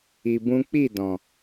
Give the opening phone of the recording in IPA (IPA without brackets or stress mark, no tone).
i